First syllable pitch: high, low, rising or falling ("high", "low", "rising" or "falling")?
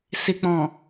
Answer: low